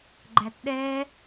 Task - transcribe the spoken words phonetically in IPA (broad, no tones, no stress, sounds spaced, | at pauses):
ɡ͡ǃ æ t ɗ ɛ